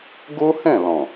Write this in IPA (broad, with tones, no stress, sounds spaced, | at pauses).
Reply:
ɡ o˦ h ɛ̃˦˨ l ɔ̃˨